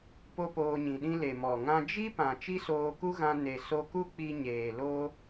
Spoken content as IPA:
po˦poː˧ɲĩ˨ɗĩ˦ le˨mɔ˨ŋã˧ d͡ʒi˦pã˨ t͡ʃi˦soː˧ku˦ɣã˧ ne˨ so˧ku˦ k͡pi˧ɲeː˨lo˧

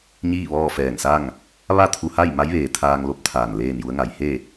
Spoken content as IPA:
ɲiː˥˨ʋɔː˥˨fɛː˧˩ŋsa˥˨ŋ | ʋa˥˨ t̪ʰu˧ha˥˨j ma˧˥jʋeː˩ t̪ʰaː˧ŋlo˧˥p̚ t̪ʰaː˧˩nleː˥˨nju˧˥ə̯ŋa˩˧j he˥˨

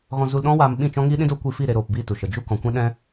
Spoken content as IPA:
ɣɔ̃˧zu˧lɗɔ̃˦waː˧m ɓĩ˦˨t͡ʃɔ̃˦ ŋiː˦ɗĩ˦doː˦kʷiː˧ fi˦˨ ɾe˧ɾoː˨pbiː˦˨ tu˨ʃə˨ d͡ʒu˦kɔ̃˨ kʷɛ̃˦ɗɛ̃˦

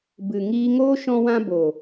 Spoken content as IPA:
bɨ˨ ŋiː˧ŋoː˦ ʃɔ̃˦wã˦ boː˨

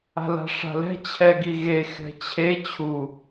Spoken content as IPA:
a̤la̤ʂa̤lɛ̤ t͡ɕʰɛɡiɣe xɛ̤t͡ɕʰe t͡ɕʰu

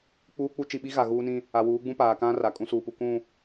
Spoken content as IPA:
k͡puː˦k͡pu˦ t͡ʃi˨ɓi˦ɣa˨ ɣuː˦nĩ˦ | a˨wuː˨˦ɡ͡bũ˦ paː˨kã˦ ra˨kʼũ˦suː˨pu˨ kũ˦˨

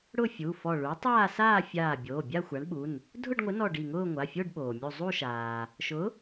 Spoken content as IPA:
ɽʊ˥˧fʲu˩˧˩fɔ˧˩ɭu˨˥ tˤaː˥˧saː˥˧fʲaː˧˩ bʲoː˩˧˩bʲa˥˧xʷa˨˥ɳɓu˩˧˩n | dʱʊ˥˧ɖŋʷɪ˨˥nɔ˧˩ ɖi˧˩ŋʊː˥˧ ŋʷa˩˧˩fʲo˥˧ɖɓoː˩ mʲu˧˩zˤu˥˧ʃaː˩ | ʃʊ˨˥

